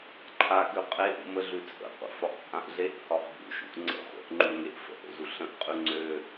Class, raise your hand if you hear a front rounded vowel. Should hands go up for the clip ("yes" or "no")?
yes